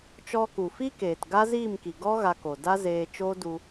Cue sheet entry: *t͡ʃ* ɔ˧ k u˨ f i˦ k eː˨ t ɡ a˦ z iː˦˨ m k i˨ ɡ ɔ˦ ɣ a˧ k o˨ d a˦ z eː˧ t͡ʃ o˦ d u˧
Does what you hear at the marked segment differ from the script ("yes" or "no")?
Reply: no